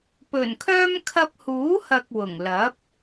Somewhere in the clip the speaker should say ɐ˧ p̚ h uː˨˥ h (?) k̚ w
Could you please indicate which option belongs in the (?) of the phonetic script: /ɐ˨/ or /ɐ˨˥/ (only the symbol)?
ɐ˨